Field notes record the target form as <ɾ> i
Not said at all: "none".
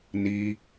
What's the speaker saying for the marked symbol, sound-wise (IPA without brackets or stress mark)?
n